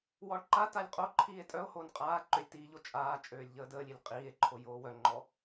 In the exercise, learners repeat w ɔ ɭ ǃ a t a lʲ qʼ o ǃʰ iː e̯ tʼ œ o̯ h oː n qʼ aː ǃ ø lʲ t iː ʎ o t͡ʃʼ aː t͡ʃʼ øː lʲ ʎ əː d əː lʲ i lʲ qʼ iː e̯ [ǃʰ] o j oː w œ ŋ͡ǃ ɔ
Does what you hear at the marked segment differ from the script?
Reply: no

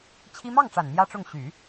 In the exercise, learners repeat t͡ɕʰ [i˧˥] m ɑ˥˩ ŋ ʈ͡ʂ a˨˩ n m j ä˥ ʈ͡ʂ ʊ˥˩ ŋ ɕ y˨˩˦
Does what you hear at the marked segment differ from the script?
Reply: yes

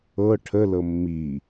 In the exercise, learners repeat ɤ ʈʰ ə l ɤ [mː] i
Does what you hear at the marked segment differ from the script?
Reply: no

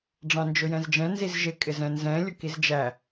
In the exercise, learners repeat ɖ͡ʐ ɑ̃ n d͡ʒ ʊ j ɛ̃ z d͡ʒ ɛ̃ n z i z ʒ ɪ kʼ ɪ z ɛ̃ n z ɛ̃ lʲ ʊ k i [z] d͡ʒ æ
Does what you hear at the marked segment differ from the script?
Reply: no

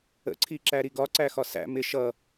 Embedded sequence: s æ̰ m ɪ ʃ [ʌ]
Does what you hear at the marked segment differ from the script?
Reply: no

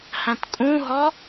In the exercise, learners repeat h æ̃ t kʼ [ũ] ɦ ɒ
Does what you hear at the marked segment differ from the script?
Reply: no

